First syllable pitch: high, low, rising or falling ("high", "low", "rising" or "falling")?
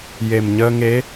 low